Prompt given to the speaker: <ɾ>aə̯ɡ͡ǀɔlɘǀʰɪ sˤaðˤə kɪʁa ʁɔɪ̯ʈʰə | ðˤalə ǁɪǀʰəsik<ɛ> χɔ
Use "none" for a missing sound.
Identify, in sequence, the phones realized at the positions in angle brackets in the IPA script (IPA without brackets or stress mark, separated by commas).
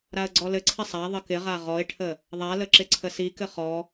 ɾ, ɘ